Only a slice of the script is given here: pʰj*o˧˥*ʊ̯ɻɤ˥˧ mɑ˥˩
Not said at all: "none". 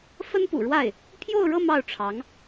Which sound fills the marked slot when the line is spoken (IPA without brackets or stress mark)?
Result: o˥˧